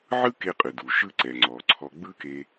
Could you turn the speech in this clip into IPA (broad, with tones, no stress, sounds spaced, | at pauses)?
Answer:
ʕ ɯ˥ k e˧ qʼ ɯ˩ d u˩ ʃ ɯ˧ ǀ ɛ˩ ŋ͡ǀ ɔ˩ ǀʰ ɔ˧ ɡ͡b ɯ˥ k e˧